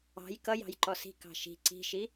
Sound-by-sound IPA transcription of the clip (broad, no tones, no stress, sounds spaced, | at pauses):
ɑ̤ j k ʌ j ɑ̤ j ǃ ɔ s i̤ k ɑ̤ ʃ i̤ ǀ i̤ ʃ i